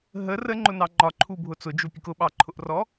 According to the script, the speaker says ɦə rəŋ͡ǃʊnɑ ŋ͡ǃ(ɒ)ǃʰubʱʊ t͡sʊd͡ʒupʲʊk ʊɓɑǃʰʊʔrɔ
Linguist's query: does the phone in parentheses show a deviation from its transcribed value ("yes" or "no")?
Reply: no